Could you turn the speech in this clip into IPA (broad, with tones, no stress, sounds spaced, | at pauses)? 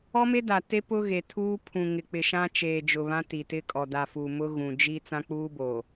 ɔ˦ m e˦ d a˨ t e˦ p ʊ˦ ɣ e˨ tʰ uː˦ pʰ ũ˨ ŋ ɪ˨ k͡p ɪ˨ ʃ ã˦ t͡ʃ eː˨ d͡ʒ ʊ˨ β ã˦ t i˨ t ɪ˦ kʼ ɔ˨ d a˨ f u˨ m ʊ˦ ɣ ũ˨ d͡ʒ i˦ t͡s ã˦ k͡p uː˦ b oː˨